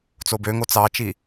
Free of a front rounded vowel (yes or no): no